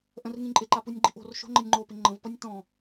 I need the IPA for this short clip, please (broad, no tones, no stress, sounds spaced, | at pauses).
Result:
ʔ ə̃ r ŋ ĩ ǃʼ ɪ ǃ a p u nʲ ɡ͡ǃ i̤ ʔ o̤ r ʃ o̤ ŋ͡ǃ ə nʲ ŋ͡ǃ o p ɪ ŋ͡ǃ ə̃ v p ʌ nʲ t ɔ̃